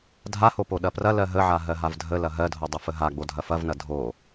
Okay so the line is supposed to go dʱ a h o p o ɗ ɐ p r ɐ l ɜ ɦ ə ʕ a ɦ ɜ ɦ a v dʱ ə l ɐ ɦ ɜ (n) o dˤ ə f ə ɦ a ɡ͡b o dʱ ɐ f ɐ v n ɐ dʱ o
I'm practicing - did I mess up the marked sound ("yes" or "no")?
yes